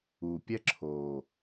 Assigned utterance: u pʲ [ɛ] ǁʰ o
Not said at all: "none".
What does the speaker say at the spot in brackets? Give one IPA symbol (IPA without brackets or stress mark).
ɛ